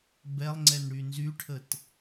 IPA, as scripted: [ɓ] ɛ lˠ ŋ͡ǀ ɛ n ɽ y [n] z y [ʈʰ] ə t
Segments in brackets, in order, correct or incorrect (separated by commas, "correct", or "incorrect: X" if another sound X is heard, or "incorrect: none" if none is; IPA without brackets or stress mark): incorrect: b, correct, correct